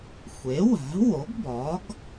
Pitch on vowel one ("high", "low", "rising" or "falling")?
rising